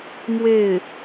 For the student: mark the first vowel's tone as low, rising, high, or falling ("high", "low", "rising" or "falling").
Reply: falling